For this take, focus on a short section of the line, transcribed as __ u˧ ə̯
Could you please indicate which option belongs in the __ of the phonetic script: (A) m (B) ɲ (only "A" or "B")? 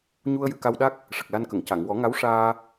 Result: B